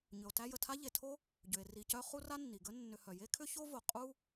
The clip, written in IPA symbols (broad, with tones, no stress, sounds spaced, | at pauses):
ɲ ʏ˩ o̯ t æ˥ j ə˨ tʰ a˥ ʎ e˨ tʰ o˥ | ɟ ʏ˩ e̯ r i˨ c œ˦ χ u˦ r a˦ nː i˩ ɡ ə˦ nː ʏ˨ h œ˩ j e˥ kʰ ʏ˥ ç o˥ v o˩ qʼ u˥